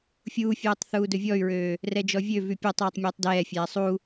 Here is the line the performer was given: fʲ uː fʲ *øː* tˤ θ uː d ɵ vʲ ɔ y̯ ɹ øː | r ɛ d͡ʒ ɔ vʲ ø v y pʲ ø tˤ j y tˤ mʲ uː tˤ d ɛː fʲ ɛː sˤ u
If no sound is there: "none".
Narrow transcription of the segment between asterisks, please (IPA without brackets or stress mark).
øː